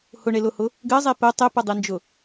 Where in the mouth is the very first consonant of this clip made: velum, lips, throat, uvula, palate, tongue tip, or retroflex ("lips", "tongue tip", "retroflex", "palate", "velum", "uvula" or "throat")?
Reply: throat